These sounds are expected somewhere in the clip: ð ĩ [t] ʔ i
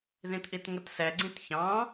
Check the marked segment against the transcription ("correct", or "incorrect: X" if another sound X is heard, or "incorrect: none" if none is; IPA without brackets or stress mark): correct